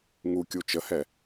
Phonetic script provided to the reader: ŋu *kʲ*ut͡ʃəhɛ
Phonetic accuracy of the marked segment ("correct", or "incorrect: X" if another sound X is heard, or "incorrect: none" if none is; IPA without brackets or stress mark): correct